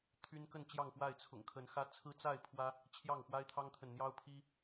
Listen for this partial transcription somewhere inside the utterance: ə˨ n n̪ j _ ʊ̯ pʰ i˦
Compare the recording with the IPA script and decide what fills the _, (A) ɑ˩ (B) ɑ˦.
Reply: B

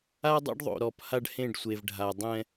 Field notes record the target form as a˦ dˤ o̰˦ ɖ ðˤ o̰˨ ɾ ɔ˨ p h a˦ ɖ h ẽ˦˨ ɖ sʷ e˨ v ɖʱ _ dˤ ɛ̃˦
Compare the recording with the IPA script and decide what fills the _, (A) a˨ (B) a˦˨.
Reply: A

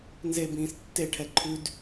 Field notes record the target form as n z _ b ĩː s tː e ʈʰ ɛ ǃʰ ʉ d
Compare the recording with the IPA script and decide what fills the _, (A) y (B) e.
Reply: B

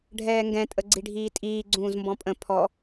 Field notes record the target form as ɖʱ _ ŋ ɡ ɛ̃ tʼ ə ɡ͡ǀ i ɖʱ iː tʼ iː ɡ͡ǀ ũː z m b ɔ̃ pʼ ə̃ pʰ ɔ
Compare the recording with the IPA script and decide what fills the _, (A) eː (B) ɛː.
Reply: B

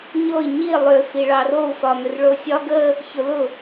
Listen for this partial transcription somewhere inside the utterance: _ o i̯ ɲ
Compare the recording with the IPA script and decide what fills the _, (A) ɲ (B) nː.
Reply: A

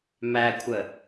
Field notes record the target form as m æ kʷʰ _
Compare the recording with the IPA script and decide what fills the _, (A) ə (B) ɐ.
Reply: A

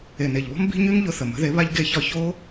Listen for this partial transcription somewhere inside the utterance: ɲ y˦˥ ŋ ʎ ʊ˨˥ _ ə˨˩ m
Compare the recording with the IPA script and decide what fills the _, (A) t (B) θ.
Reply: B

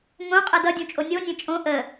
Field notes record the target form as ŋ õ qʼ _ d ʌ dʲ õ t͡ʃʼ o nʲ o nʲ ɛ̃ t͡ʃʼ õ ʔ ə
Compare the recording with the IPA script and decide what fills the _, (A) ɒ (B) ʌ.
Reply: B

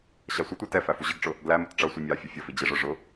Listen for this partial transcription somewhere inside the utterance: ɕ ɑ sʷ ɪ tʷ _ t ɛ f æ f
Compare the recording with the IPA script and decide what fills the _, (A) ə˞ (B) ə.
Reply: A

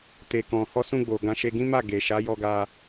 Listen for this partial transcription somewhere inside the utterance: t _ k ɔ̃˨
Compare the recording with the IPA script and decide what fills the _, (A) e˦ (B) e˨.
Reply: B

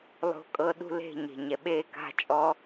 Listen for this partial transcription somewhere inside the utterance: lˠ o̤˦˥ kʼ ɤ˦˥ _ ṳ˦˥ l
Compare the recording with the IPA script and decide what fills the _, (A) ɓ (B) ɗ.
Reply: B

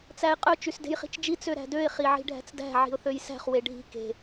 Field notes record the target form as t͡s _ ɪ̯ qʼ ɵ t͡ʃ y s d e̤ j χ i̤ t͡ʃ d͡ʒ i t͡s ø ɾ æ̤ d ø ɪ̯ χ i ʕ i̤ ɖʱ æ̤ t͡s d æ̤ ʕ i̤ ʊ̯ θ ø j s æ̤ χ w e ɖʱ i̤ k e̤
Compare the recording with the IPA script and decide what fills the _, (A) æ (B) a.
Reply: A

